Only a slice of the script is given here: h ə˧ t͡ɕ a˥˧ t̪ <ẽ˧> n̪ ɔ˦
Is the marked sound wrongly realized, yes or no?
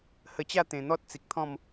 yes